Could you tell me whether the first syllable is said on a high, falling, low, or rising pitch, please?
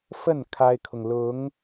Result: falling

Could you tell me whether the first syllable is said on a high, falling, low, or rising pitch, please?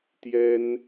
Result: high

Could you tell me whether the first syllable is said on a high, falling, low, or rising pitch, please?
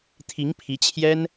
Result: rising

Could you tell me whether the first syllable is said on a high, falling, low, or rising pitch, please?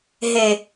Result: low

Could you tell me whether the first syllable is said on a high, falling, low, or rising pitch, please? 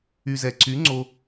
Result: low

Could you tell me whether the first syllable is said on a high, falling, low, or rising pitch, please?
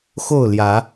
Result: falling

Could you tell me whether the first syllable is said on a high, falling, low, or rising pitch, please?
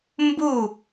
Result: falling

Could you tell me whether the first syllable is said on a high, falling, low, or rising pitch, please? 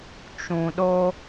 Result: low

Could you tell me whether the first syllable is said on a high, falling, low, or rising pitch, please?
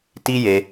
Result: high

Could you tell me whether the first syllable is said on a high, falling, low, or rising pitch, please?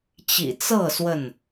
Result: low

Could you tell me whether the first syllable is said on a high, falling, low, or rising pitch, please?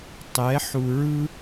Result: rising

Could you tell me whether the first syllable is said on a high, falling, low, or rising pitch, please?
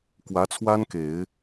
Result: rising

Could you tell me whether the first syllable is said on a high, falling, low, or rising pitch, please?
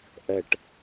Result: low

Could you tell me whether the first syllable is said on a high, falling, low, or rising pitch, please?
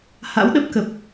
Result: rising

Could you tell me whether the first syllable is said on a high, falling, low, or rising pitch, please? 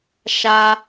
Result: high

